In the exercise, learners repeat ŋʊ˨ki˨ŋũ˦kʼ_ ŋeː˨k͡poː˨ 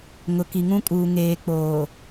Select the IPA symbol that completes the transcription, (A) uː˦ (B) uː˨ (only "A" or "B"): B